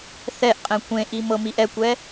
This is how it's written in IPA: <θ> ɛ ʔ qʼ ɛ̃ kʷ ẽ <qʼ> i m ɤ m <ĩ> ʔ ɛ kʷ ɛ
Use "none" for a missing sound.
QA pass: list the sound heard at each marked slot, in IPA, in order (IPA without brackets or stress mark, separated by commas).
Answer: θ, ʔ, i